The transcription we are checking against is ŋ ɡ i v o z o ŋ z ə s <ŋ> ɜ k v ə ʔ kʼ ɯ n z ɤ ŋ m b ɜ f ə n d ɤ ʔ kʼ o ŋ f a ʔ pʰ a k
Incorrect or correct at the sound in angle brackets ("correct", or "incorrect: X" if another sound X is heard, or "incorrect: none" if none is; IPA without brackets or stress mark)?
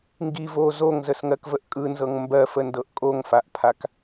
correct